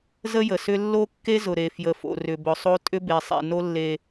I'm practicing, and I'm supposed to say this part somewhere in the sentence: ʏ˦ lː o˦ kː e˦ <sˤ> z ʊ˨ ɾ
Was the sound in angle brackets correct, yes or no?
no